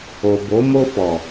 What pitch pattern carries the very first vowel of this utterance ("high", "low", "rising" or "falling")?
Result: low